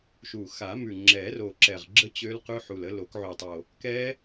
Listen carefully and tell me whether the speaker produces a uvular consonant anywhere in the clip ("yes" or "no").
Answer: yes